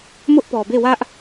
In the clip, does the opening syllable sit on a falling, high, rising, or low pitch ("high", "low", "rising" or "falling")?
high